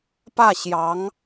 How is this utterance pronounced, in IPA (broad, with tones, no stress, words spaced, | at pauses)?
pä˥˩ɕjɑ˧˥ŋ